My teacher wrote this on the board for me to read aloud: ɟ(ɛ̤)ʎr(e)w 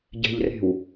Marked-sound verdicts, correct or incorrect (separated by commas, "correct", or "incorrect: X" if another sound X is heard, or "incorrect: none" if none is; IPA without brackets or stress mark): correct, incorrect: e̤